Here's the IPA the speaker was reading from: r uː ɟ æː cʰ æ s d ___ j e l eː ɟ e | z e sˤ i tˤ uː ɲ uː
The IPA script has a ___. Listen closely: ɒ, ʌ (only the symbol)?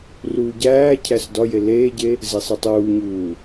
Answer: ɒ